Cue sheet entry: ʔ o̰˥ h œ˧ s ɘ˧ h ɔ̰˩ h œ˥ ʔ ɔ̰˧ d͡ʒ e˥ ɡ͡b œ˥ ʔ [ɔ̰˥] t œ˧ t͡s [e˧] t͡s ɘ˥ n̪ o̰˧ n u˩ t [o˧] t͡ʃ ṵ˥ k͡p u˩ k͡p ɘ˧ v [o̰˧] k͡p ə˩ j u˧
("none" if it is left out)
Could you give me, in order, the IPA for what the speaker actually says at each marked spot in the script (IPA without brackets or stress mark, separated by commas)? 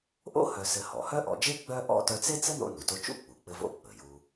ɔ̰˥, e˥, o˧, o̰˧